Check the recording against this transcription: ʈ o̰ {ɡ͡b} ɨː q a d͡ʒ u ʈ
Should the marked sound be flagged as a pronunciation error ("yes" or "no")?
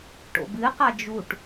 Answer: yes